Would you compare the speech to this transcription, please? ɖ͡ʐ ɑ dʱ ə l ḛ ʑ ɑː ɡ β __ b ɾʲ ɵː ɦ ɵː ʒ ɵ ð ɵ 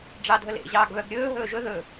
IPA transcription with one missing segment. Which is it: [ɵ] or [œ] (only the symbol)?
œ